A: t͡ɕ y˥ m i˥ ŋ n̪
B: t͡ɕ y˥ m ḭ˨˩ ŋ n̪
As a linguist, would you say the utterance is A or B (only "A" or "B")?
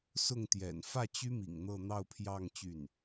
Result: B